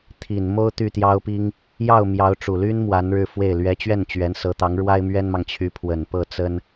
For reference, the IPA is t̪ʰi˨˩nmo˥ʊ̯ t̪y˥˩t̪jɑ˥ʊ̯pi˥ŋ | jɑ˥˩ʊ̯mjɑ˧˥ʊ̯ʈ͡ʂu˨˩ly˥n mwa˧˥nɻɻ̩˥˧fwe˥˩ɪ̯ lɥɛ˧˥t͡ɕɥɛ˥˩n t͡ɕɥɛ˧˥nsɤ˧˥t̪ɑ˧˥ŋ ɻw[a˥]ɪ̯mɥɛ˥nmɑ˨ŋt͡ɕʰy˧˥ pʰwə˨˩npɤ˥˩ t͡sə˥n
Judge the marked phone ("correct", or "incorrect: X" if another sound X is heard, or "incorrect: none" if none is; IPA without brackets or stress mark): correct